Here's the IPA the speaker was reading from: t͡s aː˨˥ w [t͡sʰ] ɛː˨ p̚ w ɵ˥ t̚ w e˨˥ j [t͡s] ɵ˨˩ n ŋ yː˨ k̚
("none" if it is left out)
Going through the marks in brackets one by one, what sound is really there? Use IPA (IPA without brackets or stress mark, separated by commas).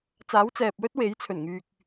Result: t͡s, t͡sʰ